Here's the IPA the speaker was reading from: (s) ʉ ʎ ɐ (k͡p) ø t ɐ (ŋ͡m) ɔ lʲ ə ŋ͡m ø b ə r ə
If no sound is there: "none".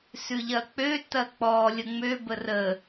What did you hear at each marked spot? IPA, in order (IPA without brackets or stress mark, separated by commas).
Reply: s, k͡p, k͡p